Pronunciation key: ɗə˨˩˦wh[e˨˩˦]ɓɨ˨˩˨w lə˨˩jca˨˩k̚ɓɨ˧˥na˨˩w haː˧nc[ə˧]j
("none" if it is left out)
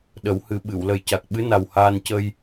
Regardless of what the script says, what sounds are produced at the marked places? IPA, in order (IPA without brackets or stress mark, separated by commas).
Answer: ɨ˨˩˦, ə˧